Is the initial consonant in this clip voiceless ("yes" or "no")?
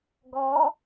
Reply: no